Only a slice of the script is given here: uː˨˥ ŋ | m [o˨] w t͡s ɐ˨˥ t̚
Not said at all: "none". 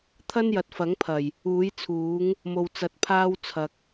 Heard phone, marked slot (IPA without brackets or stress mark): o˨